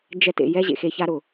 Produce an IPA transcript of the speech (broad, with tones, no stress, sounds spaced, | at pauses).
d͡ʒ ɛ˦˨ t ḛ˨ j ɛ˦ ʑ ḛ˨ x e˧ ç a˦ ɾ ʊ˨